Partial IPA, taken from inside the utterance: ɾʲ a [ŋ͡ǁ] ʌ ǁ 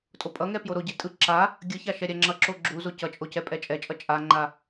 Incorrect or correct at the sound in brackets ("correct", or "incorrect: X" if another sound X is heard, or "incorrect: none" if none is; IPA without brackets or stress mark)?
correct